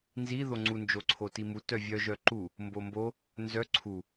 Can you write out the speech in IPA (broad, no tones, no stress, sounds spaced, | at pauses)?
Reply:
n z i ð o ŋ͡ǀ u n d͡ʒ o ǀʰ o t i m u t œ vʲ œ ʒ œ ǃ u | m b o m b o | n z œ ǀʰ u